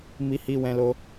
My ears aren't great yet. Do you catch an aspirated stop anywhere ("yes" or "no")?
no